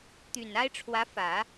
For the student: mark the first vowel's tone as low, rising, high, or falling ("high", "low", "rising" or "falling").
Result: low